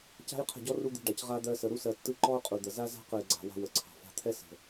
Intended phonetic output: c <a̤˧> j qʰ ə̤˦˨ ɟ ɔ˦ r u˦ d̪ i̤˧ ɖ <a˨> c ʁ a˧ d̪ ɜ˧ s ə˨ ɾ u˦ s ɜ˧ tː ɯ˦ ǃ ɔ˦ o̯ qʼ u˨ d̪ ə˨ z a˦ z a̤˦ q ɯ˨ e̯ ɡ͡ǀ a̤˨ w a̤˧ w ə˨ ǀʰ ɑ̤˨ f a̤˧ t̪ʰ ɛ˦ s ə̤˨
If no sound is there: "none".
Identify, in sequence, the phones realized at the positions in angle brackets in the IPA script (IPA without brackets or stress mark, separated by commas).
a̤˦, a˨